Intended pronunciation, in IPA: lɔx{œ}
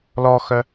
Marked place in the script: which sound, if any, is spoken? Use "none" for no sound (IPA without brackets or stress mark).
œ